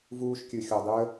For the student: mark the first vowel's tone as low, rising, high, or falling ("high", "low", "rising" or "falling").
high